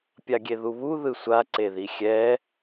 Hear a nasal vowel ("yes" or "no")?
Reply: no